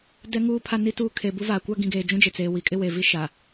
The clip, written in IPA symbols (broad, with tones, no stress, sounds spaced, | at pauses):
d ɛ˦ ŋ uː˦ pʰ a˦ n i˦ t uː˦ kʰ e˨ b u˦ v a˨ kʷ a˦ ɡ ĩ˨ ɡ eː˨ d͡ʒ ũ˦ d͡ʒ ɪ˨ t͡s eː˨ w i˨ kʼ ɪ˦ w e˨ v i˦ ʃ a˨